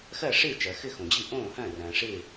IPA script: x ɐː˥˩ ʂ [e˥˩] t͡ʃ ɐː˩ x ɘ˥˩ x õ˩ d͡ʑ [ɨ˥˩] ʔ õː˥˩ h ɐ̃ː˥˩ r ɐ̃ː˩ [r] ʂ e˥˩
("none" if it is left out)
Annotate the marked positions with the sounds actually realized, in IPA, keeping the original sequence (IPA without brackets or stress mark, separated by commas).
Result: e˥˩, ɨ˥˩, none